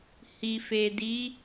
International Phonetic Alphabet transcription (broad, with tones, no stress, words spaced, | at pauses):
hi˨fe˨di˨˦